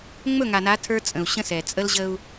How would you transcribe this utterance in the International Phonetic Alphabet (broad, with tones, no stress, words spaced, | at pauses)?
ŋ͡mɵ˦˨ŋa˨na˨˦ tʰə˞˦ t͡sʼə̃˨u̯ɕə̃˦sɛ˨ t͡sʼə˦lʑə˦u̯